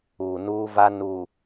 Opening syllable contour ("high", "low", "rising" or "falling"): low